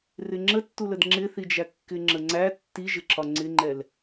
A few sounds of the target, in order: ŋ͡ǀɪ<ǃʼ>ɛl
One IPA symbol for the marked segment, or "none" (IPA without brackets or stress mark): ŋ͡ǃ